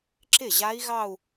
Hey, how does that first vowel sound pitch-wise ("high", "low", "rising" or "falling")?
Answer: falling